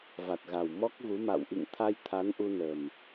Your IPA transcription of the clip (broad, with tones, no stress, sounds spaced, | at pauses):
v a˨˩ t̚ ɣ a˨˩ w m ɔ˦˥ k̚ ɣ u˨˦ m a̰˧˨ w ʔ ḭ˧˨ ŋ t̪ʰ a˧ j t̪ʰ a˨˦ n ʔ u˧ n ə˨˩ m